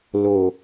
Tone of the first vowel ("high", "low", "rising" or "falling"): low